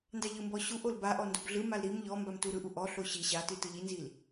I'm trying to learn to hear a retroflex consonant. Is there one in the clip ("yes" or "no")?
no